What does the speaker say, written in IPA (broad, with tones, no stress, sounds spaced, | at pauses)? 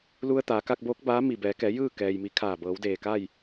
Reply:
l u˧ ə̯ t̪ aː˩˧ k a˧ k̚ b oː˧˥ k̚ b aː˧˥ m i˧˩ b ɛː˩˧ k ɛː˩˧ j ɯː˥˨ k ɛː˩ j m i˩˧ kʰ aː˧˩ b ɤː˩˧ w d eː˧˩ k aː˥˨ j